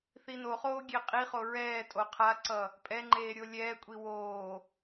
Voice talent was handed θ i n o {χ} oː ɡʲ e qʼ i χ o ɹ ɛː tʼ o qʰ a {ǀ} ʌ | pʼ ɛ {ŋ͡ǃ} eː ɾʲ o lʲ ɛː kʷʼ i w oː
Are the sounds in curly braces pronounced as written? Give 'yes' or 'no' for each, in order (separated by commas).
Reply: yes, yes, yes